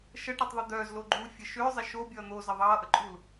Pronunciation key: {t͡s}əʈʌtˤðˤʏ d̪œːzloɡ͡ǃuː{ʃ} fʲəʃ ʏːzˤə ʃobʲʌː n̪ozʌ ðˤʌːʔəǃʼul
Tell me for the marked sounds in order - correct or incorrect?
incorrect, incorrect

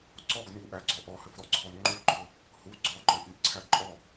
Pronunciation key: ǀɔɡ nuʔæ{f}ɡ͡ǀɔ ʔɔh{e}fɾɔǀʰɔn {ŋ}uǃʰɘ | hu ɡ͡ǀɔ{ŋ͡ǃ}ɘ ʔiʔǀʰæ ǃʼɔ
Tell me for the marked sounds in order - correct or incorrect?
incorrect, incorrect, incorrect, incorrect

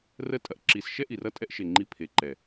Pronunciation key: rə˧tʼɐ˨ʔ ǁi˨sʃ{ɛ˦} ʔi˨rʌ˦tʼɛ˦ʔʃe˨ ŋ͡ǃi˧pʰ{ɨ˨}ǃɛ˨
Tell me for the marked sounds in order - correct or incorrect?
correct, incorrect

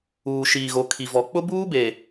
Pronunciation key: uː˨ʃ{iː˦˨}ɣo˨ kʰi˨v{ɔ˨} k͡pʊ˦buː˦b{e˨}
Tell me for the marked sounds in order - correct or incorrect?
incorrect, correct, correct

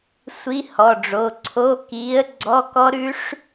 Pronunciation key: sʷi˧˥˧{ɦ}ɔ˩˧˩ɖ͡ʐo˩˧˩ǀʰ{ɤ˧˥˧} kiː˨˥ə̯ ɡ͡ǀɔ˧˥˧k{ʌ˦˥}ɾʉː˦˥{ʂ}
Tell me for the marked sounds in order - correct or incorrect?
incorrect, incorrect, incorrect, correct

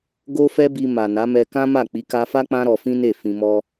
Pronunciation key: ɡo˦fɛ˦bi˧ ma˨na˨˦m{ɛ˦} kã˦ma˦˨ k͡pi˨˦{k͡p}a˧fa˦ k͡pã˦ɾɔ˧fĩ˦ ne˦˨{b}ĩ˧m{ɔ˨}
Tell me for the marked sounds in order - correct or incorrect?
incorrect, incorrect, incorrect, incorrect

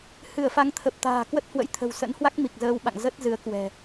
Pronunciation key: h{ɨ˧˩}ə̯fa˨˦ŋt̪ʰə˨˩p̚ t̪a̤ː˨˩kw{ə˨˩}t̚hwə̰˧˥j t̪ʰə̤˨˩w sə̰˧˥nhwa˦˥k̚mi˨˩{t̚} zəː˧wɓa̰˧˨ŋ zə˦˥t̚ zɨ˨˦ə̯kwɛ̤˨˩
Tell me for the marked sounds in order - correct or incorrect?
correct, incorrect, incorrect

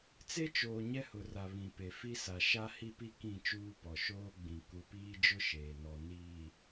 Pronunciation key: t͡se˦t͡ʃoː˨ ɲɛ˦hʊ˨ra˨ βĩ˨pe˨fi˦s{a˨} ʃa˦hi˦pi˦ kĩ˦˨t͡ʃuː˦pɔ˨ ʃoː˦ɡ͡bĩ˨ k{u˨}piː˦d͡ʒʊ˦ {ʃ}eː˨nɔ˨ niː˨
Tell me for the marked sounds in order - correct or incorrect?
correct, correct, correct

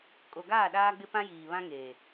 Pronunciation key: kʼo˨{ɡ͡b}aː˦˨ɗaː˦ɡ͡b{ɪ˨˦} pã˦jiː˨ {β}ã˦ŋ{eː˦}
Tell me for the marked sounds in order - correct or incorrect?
incorrect, incorrect, correct, incorrect

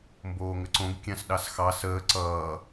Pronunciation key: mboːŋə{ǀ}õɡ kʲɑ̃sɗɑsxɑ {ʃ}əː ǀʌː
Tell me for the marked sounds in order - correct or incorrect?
correct, incorrect

